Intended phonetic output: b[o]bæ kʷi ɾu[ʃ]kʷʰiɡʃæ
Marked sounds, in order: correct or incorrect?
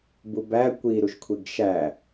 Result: incorrect: u, correct

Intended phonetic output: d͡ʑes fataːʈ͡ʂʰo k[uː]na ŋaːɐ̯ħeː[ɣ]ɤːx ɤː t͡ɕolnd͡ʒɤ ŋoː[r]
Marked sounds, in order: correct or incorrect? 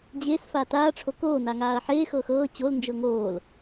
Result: incorrect: oː, incorrect: x, incorrect: l

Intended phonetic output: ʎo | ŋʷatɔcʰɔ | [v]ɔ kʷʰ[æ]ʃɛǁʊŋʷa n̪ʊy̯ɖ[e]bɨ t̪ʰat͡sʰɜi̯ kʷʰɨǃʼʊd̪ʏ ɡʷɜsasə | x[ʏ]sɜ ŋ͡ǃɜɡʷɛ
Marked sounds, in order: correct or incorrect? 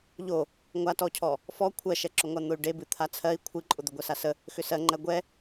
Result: incorrect: f, incorrect: ɜ, correct, correct

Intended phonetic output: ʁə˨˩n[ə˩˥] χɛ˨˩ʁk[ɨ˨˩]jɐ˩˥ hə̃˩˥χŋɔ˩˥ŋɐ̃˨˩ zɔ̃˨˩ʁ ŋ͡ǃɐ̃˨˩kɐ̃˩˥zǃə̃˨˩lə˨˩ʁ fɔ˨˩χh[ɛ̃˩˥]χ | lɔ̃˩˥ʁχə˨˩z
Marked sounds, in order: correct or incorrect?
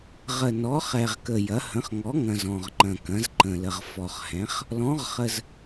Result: incorrect: ɔ˩˥, incorrect: ə˨˩, correct

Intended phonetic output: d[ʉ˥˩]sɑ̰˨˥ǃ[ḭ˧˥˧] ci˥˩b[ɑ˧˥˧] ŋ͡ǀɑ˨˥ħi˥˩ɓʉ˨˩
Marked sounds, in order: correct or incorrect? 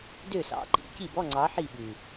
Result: incorrect: ø˥˩, correct, incorrect: ɔ˧˥˧

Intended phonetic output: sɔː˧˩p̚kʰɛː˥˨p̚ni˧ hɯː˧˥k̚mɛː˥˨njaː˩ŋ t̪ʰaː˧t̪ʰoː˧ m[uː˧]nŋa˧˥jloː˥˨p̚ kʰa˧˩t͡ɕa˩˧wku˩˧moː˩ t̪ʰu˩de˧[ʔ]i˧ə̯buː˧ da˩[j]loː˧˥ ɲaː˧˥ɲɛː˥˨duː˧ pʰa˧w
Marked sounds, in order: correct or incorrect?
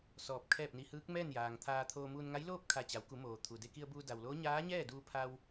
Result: correct, incorrect: k, incorrect: w

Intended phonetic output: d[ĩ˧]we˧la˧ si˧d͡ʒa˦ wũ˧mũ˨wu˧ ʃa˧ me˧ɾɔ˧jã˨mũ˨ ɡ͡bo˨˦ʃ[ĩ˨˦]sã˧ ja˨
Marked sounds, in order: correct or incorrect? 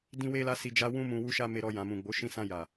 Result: correct, incorrect: ĩ˧

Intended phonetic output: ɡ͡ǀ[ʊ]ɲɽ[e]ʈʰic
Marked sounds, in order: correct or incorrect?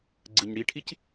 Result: incorrect: ɯ, incorrect: i

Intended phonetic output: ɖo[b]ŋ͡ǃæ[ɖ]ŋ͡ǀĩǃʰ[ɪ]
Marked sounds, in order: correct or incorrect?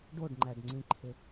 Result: incorrect: ɖ, correct, correct

